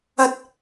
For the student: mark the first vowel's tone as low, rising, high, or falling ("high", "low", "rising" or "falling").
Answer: high